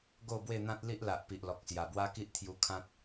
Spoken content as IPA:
ɡ o˥˧ b w e˥˧ n̪ ã˦ t̚ l i˦ ʔ l a˨ ʔ p i˨ ʔ l ɔ˨ k̚ s j a˨˩ b w a˦ k i˦ ʔ t̪ʰ j u˧ kʰ ã˦ t̚

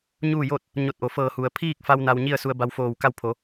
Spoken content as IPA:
ɲ uː˥˨ j oː˥˨ t̚ | ɲ o˧˩ t̚ ʔ o˩ f ɤː˧˩ h u˩ ə̯ pʰ iː˥˨ k̚ f a˧ w n a˧ w ɲ i˥˨ ə̯ s u˧ ə̯ b a˧ w f oː˧˩ w k a˧ w pʰ o˩˧

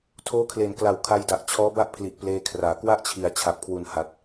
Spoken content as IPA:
tʰ oː˦˥ kʰ l e˨˩ n k l a˨˩ w kʰ a˧ j d a˨˩ ʔ t͡ɕʰ ɔː˦˥ b a˥˩ ʔ pʰ l i˨˩ ʔ p l eː˧ kʰ r aː˩˦ k w a˥˩ ʔ t͡ɕʰ i˩˦ a̯ t͡ɕʰ a˨˩ p̚ kʰ w u˨˩ n h a˨˩ t̚

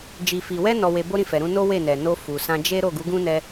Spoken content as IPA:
d͡ʒ i˨ f i˨ w ɛ˧ n ɔ˧ w e˧ b o˦ ɾ ĩ˦˨ f ɛ˨ ɾ ũ˧ n o˦ w e˦˨ n ɛ˨ n o˧ f u˨ s ã˧ d͡ʒ e˦ ɾ o˦˨ ɡ u˨˦ ɡ ũ˦ n ɛ˧

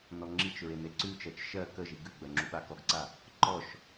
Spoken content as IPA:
n ɔ ŋ͡ǁ i t͡ʃ ɹ e n e ǀ ʉ t͡ʃ ɜ t͡ʃ ʃ ɜ k ə ʒ i ɡ ʉ ɡ͡b ɜ ŋ͡ǁ u ɓ a k ɔ ɡ ǀ a | ǃ ɔ ʃ

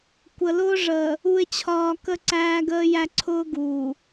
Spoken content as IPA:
kʷ ə˨ l ʊː˦ ʐ əː˨ | u˨ ɪ̯ t͡ɕʰ ɒː˨ k ə˦ ǀ æː˦ ɡ əː˦ j æ˦ ǀʰ ʊː˦ ɡ uː˨

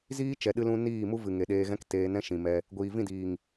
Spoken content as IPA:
z iː˦ t͡ʃ ɛ˨ ɗ ɨ˧ l ũ˧ n iː˦˨ m u˦ v ɨ˨ ŋ e˨ ɗ eː˧ ɣ ɛ̃˦ k t eː˧ n ɛ̃˦ ʃ ĩ˨ m ɛ˧ | ɡʷ iː˨ v ĩ˦˨ d iː˨ ŋ

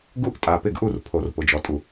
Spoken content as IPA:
ɡ u˥˨ ʔ tʼ a˩˧˩ p ɪ˥˨ ɡ ʔ u˥˨ r pʰ o˧˩˧ r p ʊ˩˧ d͡ʒ ɔ˩˧ tʼ u˩

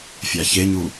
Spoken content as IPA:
fʲ a ç e ɲ u

